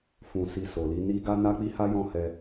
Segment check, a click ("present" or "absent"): absent